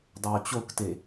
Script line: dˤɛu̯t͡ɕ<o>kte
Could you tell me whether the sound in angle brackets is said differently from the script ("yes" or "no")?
no